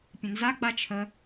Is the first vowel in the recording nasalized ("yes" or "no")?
yes